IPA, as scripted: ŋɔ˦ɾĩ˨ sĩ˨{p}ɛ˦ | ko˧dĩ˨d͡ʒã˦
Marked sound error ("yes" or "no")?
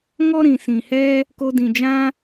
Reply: yes